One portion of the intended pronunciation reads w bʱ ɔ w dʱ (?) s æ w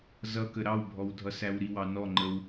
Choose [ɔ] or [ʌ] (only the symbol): ʌ